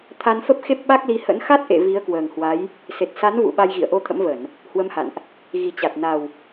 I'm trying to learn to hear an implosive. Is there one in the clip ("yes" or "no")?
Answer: yes